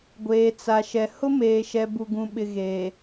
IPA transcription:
ɡʷ eː˨ t͡s a˨ ʃ ɛ˨ h ʊ˦ m eː˨ ʃ ɛ˨ b u˦ ɡ ũ˦ ɓ ɪ˦ ɣ eː˨

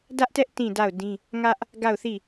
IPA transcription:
d ä˦ ʔ t ɛ˦ ʔ t ĩ˦˨ d a˦˨ ʊ̯ d ĩ˦ | ŋ ä˦ ʔ | ɡ a˦˨ ʊ̯ θ i˦˨

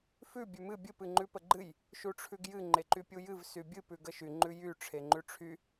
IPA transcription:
f ʉ bʲ ʉ m ɨ bʲ ɨ p ɨ ŋ͡ǃ ʉ p ə ɡ͡ǃ ɨ j | ʃ u ʈ͡ʂʰ ʉ ɡ j ɨ ŋ͡ǃ e ǃ y pʲ u j ɨ v s y bʲ ɨ p ʉ ɡ ə ʃ y ŋ͡ǃ ʉ j y ʈ͡ʂʰ e ŋ͡ǃ ʉ ʈ͡ʂʰ y

